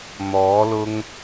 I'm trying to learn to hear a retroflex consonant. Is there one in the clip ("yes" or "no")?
no